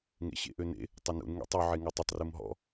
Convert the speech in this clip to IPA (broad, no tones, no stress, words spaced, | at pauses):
ŋḛɕḛʔønḛ | tˤɵnṵn ŋḛtˤu ʕeŋutˤɵtˤ rumɦɔ̰